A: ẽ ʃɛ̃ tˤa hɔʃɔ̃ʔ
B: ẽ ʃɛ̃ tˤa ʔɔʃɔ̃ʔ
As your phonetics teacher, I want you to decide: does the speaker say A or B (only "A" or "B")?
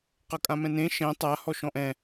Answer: A